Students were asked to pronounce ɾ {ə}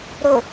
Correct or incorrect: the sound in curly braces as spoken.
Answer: incorrect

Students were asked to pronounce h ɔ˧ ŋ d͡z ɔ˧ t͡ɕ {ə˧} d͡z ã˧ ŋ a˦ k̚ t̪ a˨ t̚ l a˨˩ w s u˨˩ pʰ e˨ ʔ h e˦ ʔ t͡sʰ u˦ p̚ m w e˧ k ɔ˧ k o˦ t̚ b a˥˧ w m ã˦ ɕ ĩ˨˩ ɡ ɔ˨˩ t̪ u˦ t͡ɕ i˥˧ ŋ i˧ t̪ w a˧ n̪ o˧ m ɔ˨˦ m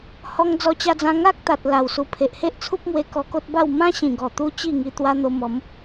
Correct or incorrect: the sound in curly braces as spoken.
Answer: incorrect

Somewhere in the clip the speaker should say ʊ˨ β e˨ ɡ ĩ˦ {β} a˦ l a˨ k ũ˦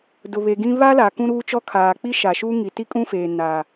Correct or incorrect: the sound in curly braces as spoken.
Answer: correct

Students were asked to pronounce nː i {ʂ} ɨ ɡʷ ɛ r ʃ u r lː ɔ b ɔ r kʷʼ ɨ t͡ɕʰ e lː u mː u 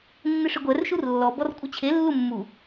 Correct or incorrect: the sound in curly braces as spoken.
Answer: correct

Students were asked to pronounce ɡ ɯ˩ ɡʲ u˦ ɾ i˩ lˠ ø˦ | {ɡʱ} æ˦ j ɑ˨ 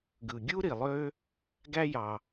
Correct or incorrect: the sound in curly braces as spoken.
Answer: incorrect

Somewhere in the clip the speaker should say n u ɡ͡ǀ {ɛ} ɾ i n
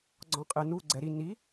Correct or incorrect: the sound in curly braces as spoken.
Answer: correct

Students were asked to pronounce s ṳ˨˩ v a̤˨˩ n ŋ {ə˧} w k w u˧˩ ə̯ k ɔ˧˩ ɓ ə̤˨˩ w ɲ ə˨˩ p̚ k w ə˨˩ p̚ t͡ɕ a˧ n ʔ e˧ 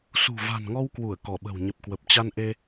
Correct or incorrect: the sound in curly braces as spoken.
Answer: incorrect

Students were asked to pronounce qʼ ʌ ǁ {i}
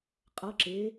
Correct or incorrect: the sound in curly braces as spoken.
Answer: incorrect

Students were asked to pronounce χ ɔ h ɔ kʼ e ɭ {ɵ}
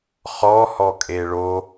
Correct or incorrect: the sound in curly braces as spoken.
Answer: incorrect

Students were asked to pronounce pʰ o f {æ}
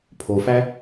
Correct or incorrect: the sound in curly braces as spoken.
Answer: correct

